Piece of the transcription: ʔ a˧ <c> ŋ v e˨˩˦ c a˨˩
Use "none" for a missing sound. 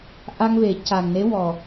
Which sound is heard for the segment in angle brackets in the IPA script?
none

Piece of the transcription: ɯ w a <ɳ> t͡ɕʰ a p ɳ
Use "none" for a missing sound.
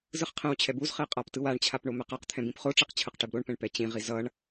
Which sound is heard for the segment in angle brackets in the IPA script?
ɳ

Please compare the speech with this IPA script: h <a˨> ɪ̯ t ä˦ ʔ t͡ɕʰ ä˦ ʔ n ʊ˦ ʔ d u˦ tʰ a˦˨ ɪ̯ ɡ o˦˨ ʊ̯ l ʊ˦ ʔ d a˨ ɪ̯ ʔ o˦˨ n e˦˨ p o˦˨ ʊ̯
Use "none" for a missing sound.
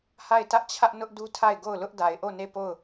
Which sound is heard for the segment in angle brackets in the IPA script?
a˦˨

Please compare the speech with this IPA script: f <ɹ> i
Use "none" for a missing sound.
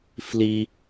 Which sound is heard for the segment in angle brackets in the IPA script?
l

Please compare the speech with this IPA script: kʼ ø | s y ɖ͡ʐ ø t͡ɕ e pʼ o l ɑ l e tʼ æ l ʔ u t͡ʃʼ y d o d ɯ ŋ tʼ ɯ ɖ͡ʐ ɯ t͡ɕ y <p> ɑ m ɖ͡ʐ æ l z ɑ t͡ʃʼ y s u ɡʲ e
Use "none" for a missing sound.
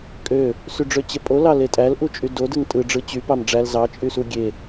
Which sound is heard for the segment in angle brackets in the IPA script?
p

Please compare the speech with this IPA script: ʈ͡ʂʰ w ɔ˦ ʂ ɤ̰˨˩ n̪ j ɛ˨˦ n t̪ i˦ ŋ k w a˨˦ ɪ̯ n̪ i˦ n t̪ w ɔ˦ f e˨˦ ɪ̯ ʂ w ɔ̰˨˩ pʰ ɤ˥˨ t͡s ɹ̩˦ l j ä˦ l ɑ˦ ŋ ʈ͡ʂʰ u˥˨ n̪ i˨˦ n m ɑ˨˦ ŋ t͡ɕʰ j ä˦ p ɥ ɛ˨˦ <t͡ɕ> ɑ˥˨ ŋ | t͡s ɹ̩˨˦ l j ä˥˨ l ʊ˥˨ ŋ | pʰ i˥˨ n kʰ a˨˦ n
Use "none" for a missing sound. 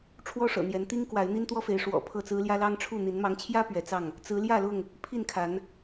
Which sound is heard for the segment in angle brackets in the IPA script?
t͡s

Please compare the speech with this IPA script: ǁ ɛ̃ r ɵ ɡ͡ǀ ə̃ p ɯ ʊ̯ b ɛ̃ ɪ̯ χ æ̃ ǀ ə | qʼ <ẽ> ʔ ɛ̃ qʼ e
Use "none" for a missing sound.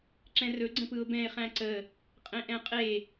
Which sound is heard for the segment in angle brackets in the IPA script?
ẽ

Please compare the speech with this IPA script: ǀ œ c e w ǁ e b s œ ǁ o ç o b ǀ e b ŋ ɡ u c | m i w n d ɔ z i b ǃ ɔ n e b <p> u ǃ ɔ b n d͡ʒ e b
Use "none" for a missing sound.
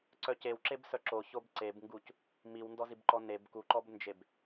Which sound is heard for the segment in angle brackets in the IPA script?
k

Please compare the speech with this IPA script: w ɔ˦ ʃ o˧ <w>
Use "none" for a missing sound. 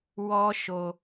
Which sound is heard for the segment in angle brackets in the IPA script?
none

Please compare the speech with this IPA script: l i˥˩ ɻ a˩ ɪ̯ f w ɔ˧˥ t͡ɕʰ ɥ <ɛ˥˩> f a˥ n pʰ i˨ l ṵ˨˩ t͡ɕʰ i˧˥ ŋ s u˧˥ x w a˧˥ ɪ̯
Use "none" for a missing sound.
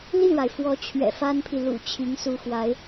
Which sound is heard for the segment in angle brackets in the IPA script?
ɛ̰˨˩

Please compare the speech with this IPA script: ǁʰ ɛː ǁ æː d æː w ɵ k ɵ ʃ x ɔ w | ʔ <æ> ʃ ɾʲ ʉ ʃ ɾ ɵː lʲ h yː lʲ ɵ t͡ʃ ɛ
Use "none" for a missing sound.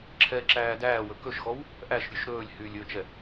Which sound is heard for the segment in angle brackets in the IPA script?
æ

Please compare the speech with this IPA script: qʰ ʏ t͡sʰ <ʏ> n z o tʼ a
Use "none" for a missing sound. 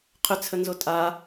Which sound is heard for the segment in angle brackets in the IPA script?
ə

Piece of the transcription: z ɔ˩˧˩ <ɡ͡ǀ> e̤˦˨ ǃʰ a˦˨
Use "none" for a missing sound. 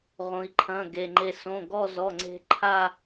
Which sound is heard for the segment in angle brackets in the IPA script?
ŋ͡ǀ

